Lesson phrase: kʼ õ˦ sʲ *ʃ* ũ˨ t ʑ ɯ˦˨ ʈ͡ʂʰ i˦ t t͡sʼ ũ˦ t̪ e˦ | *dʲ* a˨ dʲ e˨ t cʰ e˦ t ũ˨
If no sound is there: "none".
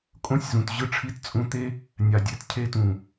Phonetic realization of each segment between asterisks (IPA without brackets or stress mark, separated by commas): z, nʲ